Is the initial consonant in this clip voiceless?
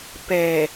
yes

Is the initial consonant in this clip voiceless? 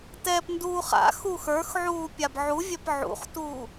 yes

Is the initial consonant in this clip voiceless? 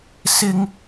yes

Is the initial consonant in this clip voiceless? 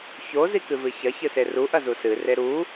yes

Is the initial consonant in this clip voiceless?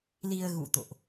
no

